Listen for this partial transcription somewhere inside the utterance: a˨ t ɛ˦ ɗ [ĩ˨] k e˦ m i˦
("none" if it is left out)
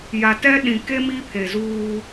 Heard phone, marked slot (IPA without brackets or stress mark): ĩ˨